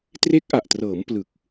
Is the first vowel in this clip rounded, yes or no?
no